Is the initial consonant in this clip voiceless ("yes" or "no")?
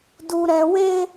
no